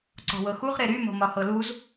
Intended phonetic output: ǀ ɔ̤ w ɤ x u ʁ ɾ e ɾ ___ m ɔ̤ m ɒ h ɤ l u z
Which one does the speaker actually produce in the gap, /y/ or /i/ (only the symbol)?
y